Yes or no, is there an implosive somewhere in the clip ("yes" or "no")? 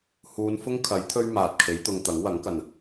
no